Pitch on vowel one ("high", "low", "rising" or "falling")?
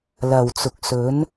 low